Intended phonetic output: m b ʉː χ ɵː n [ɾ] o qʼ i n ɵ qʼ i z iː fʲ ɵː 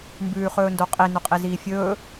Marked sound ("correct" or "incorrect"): incorrect